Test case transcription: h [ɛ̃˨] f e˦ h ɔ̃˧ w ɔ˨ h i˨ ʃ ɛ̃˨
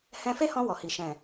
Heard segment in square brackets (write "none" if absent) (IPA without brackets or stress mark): ɛ̃˧